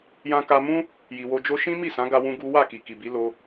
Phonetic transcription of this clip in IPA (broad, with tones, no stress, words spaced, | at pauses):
jã˧ka˧mũ˦ | ji˨wo˧d͡ʒo˦ ʃĩ˦mi˦˨sã˨˦ ɡa˦wũ˦ɡu˦ wa˦˨ki˨ki˨bi˨˦ lo˦